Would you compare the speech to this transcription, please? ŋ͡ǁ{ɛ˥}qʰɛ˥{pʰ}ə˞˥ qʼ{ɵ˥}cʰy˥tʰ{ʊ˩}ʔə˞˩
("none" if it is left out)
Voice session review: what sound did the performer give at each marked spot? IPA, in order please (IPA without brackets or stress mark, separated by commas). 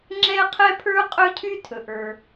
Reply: ɛ˥, pʰ, ɵ˥, ɵ˩